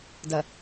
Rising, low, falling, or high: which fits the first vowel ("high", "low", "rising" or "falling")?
low